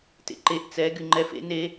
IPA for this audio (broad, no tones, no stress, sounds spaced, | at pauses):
t ḛ ǃ e ʔ t͡s ɛ ɡ y ŋ͡ǃ ɛ f ḛ n e